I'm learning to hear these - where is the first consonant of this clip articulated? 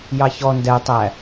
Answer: palate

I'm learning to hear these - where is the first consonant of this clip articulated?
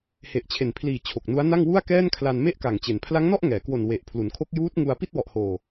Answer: throat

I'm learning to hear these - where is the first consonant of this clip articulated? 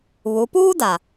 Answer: lips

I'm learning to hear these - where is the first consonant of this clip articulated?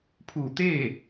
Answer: lips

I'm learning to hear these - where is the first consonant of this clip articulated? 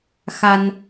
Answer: velum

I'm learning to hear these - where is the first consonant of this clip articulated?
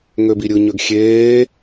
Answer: velum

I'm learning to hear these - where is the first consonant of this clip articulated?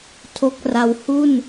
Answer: tongue tip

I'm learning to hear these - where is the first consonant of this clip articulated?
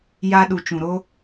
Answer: palate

